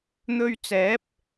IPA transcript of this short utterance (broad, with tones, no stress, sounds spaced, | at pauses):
n̪ ɵ˧ ɥ t͡s ɛː˨˥ p̚